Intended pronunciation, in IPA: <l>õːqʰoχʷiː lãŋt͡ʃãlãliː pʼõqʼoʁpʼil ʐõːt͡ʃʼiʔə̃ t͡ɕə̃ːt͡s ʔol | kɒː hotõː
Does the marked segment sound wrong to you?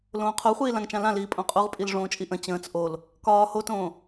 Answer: no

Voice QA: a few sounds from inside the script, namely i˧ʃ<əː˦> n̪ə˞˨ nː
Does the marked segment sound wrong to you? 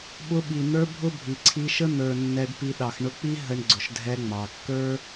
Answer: yes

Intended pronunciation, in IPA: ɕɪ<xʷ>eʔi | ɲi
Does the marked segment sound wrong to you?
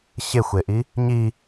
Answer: no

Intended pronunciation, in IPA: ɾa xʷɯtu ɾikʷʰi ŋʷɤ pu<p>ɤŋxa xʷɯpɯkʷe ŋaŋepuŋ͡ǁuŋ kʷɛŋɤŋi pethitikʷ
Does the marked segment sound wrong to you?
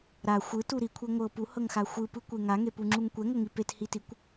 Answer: yes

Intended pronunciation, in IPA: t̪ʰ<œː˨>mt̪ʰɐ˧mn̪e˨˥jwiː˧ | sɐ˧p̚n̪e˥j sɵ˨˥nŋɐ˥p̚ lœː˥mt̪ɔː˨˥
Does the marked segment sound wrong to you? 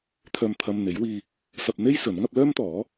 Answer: yes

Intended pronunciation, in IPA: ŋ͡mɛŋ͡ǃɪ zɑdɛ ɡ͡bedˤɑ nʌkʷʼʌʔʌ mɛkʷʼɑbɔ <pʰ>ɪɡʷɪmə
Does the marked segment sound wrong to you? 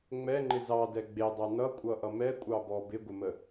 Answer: yes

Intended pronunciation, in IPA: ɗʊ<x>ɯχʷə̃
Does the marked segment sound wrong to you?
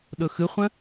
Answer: no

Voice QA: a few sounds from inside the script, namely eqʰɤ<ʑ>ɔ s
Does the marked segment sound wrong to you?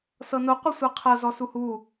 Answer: yes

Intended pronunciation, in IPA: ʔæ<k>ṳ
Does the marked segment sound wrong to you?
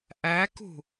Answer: no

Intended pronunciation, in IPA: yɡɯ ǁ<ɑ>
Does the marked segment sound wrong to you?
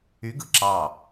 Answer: no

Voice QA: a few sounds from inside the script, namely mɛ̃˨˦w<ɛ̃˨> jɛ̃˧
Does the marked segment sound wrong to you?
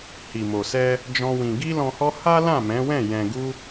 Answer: yes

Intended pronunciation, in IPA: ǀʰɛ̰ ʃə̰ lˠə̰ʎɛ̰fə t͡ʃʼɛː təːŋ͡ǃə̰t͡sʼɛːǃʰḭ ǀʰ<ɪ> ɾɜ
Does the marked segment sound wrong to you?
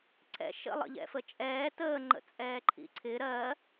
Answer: no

